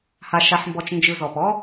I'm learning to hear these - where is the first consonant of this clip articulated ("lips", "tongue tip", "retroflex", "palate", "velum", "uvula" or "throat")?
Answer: throat